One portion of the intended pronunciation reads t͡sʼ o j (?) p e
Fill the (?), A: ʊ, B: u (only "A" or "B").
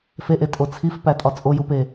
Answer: B